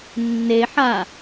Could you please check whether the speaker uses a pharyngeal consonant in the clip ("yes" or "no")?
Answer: yes